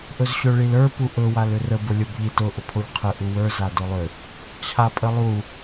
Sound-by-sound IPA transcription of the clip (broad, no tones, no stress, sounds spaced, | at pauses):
ʔ ɵ z ɕ ɵ ɭ i l ə˞ p u ʔ ɵ w a l ʏ r ə b ʊ lʲ o b ʎ i t ʊ ʔ ʊ pʰ o ʎ qʰ ə ʔ u w ə˞ z a d ʊ lˠ ʏ | t͡ɕʰ a pʼ ə lˠ u